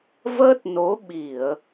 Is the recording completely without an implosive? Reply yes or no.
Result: no